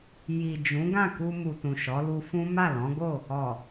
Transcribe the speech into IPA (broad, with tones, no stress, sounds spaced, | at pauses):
j i˨ d͡ʒ ũ˨˦ ɡ ã˦˨ k u˧ m u˨ t ũ˨ ʃ ɔ˨˦ l u˧ f ũ˦ m a˦˨ l ɔ̃˨˦ ɡ o˦˨ | ɔ˨